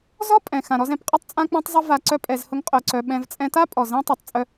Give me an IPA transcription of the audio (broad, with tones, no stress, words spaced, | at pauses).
zɔ˦pʼɛ̃˨ xã˨ɾɔ˧zɛ̃˨pqʼʌ˦tˤ t͡sʼã˦k͡pã˦tˤzˤʌ˦ va˧ǀœ˦ pʼɛ˧zhʊ˦ŋqʼœ˧ǀœ˧ ɓɛ̃˧v t͡sʼɛ̃˧ta˦ pʼɔ˨ zɛ̃˧ tˤœ˨tˤ t͡sʼœ˧